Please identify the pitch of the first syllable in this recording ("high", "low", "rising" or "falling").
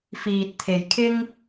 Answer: low